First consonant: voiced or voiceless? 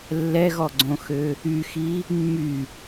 voiced